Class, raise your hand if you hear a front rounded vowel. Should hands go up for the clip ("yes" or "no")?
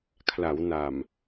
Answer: no